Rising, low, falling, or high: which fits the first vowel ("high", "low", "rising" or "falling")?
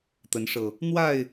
rising